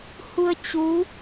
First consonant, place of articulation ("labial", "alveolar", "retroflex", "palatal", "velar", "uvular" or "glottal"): glottal